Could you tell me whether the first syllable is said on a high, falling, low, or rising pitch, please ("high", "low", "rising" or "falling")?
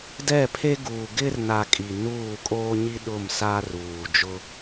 falling